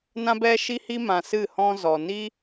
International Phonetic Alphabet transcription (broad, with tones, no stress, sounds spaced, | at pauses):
n ã˦ b ɛ˦ ʃ i˦ h i˦ m ã˨ s ɨ˦˨ h ɔ̃˦ z ɔ˨ n i˦